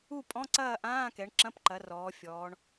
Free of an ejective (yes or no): no